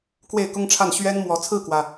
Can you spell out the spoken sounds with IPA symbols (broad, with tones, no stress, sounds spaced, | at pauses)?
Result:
k w e˥˩ ɪ̯ k ʊ˥ ŋ ʈ͡ʂʰ a˥˩ n ɕ ɥ ɛ˥ n m w ɔ˧˥ t͡sʰ ɹ̩˥˩ k w ä˩